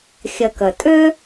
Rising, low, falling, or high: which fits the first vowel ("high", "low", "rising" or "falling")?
low